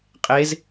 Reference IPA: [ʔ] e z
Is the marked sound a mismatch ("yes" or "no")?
yes